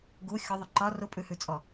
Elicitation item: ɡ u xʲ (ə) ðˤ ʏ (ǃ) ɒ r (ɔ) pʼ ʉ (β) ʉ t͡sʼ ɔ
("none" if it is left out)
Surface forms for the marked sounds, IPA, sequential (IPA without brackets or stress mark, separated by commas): ʊ, ǃ, ʊ, h